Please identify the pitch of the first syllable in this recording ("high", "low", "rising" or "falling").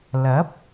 rising